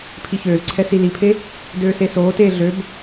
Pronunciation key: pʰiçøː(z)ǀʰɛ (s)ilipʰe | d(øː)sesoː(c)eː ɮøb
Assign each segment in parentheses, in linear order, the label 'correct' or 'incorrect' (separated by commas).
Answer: correct, correct, correct, incorrect